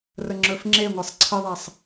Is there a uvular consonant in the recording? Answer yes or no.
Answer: no